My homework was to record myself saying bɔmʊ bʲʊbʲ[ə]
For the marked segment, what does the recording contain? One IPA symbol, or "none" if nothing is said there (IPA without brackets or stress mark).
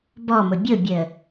ə